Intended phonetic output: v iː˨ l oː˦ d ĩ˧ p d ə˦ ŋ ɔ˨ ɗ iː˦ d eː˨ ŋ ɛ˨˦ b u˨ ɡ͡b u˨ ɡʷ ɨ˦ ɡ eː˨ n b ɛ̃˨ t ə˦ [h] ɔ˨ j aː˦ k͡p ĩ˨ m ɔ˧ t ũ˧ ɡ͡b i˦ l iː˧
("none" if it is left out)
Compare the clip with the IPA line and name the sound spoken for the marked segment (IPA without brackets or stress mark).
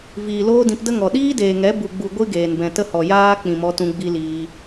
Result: h